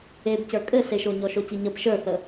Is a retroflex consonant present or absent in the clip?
absent